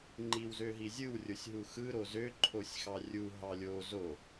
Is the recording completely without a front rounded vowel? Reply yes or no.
no